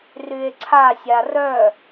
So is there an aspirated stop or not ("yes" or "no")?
yes